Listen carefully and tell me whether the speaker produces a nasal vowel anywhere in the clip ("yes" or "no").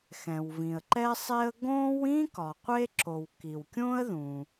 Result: yes